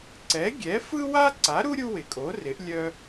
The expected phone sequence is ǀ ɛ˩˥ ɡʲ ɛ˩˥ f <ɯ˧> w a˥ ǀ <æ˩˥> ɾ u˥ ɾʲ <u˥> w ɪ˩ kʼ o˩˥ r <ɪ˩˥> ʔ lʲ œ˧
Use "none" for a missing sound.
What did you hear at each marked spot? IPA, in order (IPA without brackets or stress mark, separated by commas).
ɯ˥, a˩˥, u˥, ɪ˩˥